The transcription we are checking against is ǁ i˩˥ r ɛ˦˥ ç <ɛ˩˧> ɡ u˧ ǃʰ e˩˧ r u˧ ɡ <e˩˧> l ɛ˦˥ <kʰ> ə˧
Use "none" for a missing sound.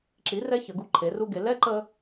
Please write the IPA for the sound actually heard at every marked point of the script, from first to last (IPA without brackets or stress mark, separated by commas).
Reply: ə˩˧, e˩˧, ǃ